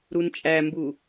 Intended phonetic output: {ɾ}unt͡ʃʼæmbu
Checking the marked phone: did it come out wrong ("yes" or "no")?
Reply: no